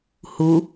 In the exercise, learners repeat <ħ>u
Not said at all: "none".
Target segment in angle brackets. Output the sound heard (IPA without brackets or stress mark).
h